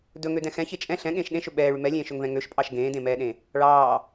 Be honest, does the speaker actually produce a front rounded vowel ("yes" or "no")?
yes